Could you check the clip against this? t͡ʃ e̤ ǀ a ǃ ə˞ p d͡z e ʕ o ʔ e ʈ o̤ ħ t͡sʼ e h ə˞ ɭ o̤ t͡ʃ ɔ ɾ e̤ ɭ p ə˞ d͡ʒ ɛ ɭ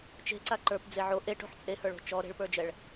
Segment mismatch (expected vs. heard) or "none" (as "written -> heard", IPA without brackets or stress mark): none